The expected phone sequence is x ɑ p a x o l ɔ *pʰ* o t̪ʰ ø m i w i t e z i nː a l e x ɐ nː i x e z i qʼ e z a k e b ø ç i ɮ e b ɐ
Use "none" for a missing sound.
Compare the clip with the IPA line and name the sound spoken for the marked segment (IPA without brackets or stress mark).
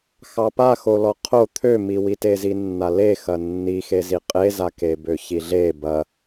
qʰ